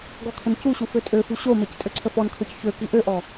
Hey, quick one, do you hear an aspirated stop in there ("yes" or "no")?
yes